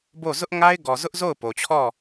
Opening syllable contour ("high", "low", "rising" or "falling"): falling